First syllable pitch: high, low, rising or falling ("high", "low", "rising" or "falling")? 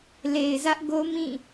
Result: low